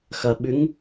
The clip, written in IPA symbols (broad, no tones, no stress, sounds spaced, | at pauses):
x ɐ ɓ ʉ ŋ